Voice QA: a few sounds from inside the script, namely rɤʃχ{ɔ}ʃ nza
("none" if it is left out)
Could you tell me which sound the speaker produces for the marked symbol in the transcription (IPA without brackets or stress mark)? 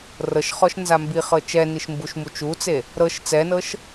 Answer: ɔ